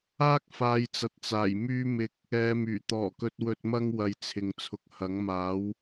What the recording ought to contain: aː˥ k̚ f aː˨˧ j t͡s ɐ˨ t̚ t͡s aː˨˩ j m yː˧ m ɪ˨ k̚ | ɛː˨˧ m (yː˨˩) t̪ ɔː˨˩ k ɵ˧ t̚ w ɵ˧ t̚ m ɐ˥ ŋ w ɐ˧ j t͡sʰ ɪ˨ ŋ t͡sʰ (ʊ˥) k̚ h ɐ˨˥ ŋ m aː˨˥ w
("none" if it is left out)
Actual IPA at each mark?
yː˨˩, ʊ˨

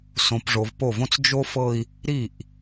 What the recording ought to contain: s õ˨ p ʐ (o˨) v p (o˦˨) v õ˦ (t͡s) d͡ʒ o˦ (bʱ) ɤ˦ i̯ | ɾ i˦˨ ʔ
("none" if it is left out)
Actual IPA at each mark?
o˨, o˦˨, t͡s, f

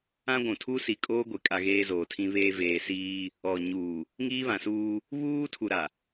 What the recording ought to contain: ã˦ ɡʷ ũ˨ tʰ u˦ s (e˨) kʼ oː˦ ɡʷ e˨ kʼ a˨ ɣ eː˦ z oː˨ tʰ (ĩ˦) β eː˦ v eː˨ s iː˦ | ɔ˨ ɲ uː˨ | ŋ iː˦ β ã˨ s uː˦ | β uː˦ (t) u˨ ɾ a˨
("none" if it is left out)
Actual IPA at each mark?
i˨, ĩ˦, tʰ

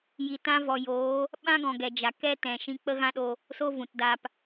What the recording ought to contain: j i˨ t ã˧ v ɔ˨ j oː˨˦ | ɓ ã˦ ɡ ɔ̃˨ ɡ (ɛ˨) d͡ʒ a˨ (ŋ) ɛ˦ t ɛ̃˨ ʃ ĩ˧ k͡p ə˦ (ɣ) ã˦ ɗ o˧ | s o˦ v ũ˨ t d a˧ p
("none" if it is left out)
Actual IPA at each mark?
ɛ˨, k, ɣ

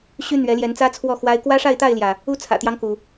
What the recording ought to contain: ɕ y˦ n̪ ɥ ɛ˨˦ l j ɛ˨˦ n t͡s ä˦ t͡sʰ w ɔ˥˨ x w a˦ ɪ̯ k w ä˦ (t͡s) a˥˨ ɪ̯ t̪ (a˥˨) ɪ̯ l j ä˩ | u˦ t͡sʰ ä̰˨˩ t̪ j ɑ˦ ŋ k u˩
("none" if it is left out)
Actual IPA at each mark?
ʂ, a˥˨

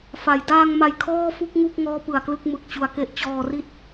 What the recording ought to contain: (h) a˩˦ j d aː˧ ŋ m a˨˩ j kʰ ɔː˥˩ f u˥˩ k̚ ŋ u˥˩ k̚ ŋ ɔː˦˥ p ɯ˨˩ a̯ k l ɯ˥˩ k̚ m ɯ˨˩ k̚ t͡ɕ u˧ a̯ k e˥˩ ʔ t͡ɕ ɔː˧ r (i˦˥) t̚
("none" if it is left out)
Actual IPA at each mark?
f, i˥˩

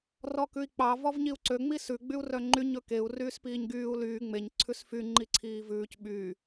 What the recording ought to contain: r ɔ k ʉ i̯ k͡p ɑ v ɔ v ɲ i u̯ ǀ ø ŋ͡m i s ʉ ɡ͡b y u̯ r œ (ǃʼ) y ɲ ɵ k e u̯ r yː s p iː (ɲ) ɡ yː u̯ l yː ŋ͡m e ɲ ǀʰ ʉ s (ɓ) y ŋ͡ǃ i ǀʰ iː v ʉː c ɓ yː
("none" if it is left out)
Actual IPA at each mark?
ŋ͡ǃ, ɲ, f

